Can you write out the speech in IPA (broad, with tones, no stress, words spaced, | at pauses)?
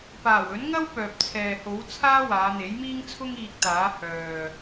paː˨˩wɵ˨˥nŋɐ˥w pœː˨p̚t͡sʰɛː˨ho˨˥wt͡sʰaː˥ waː˨˧n̪e˨˥jmiː˥ŋt͡sʰʊ˥ŋ iː˧k̚t̪aː˨˥ hœː˨